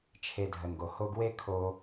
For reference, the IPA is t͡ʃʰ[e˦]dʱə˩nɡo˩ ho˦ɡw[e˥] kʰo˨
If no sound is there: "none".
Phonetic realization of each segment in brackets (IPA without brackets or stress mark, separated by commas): e˨, e˥